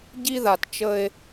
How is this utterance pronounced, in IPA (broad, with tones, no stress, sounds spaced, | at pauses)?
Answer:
ɟ i˦ ð a˨ t t͡ʃ ə˦ e̯